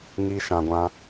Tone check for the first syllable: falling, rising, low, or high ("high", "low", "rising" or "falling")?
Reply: high